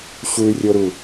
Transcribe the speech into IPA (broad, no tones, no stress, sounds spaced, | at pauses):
ɕ u y̯ rʲ o ɾ u